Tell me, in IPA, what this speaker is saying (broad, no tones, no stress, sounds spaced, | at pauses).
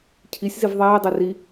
cʰ i sʲ z i v ðˤ iː dˤ i r i